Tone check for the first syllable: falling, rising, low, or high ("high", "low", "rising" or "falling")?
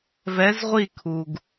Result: rising